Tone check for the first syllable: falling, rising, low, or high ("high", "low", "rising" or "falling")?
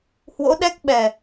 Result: rising